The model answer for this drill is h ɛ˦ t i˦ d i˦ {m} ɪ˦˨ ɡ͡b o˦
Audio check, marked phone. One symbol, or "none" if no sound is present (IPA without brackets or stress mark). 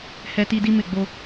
m